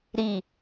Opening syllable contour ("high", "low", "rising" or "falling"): falling